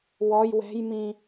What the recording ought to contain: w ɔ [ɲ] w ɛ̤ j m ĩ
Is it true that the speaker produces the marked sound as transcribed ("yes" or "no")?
no